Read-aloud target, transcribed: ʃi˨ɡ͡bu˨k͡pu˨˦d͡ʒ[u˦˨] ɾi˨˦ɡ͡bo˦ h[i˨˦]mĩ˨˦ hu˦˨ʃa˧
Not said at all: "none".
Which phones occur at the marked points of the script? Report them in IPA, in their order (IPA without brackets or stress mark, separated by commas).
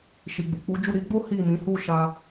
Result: u˦˨, i˦˨